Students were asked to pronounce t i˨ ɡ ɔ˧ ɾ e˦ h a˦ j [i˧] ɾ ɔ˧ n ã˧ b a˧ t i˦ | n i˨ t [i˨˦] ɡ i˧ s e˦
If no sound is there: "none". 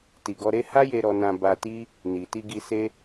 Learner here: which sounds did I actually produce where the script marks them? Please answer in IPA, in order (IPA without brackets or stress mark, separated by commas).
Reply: e˧, i˧